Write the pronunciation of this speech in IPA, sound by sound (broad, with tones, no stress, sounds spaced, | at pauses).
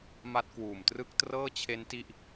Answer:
m a˦˥ t̚ k w uː˨˩ m t r ɯ˥˩ k̚ t r ɤː˥˩ t͡ɕʰ e˦˥ n t i˥˩ ʔ